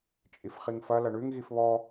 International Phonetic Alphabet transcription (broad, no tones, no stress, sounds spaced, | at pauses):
t͡ʃʼ i f χ i ŋ f ɐ l ɐ ɳ ʉ ŋ ɣ i f β ɔ